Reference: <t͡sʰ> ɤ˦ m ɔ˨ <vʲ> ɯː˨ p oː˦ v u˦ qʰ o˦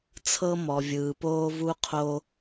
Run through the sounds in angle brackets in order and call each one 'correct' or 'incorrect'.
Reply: correct, correct

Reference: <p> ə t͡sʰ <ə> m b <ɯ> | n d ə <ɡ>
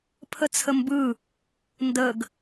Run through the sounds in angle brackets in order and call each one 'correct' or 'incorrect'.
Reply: incorrect: pʰ, correct, correct, correct

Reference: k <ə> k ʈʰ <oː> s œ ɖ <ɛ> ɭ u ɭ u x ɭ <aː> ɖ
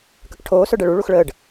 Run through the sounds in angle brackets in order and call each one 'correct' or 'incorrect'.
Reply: correct, correct, correct, incorrect: əː

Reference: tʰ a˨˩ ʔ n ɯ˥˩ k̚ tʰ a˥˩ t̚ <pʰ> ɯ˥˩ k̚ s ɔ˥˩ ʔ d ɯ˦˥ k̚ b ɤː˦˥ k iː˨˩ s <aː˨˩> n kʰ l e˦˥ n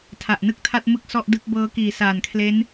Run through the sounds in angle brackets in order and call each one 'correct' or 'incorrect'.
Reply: incorrect: m, correct

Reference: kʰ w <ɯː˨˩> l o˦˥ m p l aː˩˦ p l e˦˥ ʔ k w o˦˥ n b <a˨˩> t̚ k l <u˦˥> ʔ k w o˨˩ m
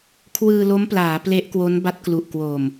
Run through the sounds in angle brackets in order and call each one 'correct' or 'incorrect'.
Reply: incorrect: ɯː˧, incorrect: a˦˥, incorrect: u˨˩

